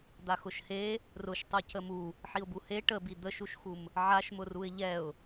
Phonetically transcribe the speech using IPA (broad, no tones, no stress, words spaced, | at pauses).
d̪axʊʃhe | rʊʃ tˤucəmu | ħiʊ̯buhe ʈəbi d̪əʃuʃxum | ʕaʃmʊruɪ̯ ʎɛʊ̯